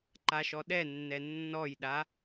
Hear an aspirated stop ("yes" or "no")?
no